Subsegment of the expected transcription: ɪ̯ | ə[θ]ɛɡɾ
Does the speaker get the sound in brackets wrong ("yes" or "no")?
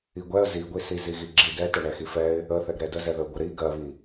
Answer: no